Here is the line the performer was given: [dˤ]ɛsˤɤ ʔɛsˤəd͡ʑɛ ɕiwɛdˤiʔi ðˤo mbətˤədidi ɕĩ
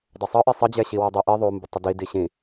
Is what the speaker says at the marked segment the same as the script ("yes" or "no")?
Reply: yes